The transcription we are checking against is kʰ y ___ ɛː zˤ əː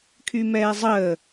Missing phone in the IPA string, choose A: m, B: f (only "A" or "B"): A